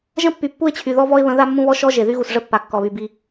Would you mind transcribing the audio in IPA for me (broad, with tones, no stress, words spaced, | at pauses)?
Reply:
ʒə̃˦pːy˨ pːu˦ɪ̯t͡ɕʰy˨ ðɔ˦vɔ˦ɪ̯βə̃˨˦ ða˦mːũ˦βɔ˦ ʃɔ˦ ʒe˨ ðy˦ɣu˨s ʐə˦pːa˨ kːɔ˨βy˨bi˦